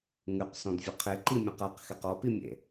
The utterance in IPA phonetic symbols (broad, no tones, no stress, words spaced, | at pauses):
ŋʉqsɔ̃dvʲɘ qʰeǃimʲɔ̃q aqxeq ɔpimʲḛ